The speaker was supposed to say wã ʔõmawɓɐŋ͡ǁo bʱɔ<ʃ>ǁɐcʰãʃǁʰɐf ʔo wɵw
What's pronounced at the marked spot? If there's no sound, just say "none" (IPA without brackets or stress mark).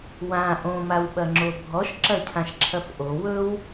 ʃ